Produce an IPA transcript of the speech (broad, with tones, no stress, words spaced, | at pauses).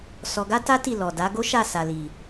sɔ˧ ɡa˦ta˦ ti˦˨lɔ˨da˨˦ ɡo˦ʃa˦˨sa˨li˨